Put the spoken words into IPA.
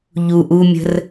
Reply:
ʎ u ʔ u mʲ ə̤ r

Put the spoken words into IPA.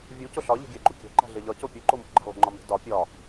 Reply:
vʲ u c o ɬ ɒ ʎ e̤ ɡʲ æ ɡ͡ǃ u kʲ æ̤ ǃ æ̤ ɮ e ʎ ɒ c o pʲ u ǃ o m o̤ ɡ͡ǃ æ̤ lˠ o̤ ŋ͡ǃ ɒ m e̤ d ɒ pʲ ɒ

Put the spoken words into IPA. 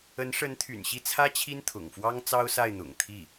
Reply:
ə˧˥ n ʂ ə˧˥ n t̪ʰ y̰˨˩ n ɕ i˥˩ t͡sʰ ä˥ t͡ɕʰ i˥ n t̪ʰ ʊ̰˨˩ ŋ f w ɑ˥ ŋ t͡s ɑ˥ ʊ̯ s a˥˩ ɪ̯ n̪ ʊ̰˨˩ ŋ t̪ʰ i˥˩

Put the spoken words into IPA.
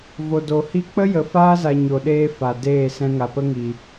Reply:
v o˨ d o˨ h i˧ k͡p ə˦ j ə˨ f aː˦ z a˨ ɲ o˨ ɗ eː˧ f a˨ d eː˦˨ s ɛ̃˧ ŋ a˨ p ə˦ ŋ i˨

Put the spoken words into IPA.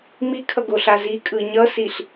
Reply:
m i kʰ ʌ ɡ o ɬ a z i kʼ ɯ ɲ ʌ s i ɬ

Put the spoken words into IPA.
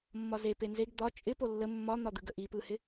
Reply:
mː ɒ z e p e n z e ɡ d̪ ɒ t͡ʃʼ ɪ p o lː ə mː ɒ n̪ ɒ d̪ ɯ ɡ ə ʔ i p ɯ h ɪ

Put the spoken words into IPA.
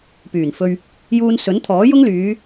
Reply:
p yː˨˩ n f ɵ˧ ɥ | j uː˧ n s ɵ˨˥ n t̪ʰ ɔː˨˥ j ʊ˥ ŋ l yː˨˧

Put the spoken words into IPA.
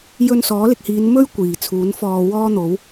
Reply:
j ɵ˧ n s ɔː˨˥ l ɪ˧ k̚ h iː˨˧ n m ɵ˥ ɥ kʷ iː˨˩ t͡sʰ uː˨˥ n f ɔː˧ w ɔː˥ n̪ o˨˥ w

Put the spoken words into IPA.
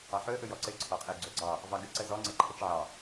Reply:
ɑ ħ ɵ ə̯ ʔ ɵ j ɔ ǀ ɘ ǀʰ ɔ qʼ ɘ ɡ͡ǀ ɵ ɡ͡ǀ ɑ | v ɑ ɡ ɘ ǀ ə z ɔ ŋ͡ǀ ɘ ǃʰ ə t͡ʃ ʕ ɑ

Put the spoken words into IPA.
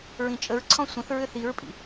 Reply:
ɹ ĩ t͡ʃʼ ə ɹ ǀʰ ɔ̃ sʷ ə̃ θ ɹ ʏ θ i ɹ pʼ ḭ

